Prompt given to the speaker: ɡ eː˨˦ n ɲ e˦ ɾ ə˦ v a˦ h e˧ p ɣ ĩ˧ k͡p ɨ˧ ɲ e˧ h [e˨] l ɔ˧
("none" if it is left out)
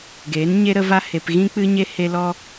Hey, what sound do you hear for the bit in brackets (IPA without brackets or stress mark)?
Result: e˧